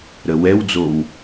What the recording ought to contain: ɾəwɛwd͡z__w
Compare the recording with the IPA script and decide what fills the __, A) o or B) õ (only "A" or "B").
A